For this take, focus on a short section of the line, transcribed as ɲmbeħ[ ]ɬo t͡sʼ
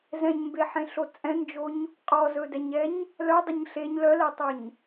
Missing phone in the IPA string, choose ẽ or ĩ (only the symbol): ẽ